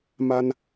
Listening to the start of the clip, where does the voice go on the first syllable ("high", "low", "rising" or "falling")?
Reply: high